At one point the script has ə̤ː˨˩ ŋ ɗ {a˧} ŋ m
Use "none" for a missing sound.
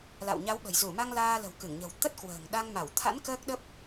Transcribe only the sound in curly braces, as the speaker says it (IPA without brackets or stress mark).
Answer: a˧